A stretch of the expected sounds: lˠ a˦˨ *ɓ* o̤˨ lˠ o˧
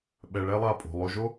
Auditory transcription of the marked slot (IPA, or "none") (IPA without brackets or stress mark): pʼ